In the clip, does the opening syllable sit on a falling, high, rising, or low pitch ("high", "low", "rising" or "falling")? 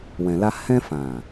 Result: low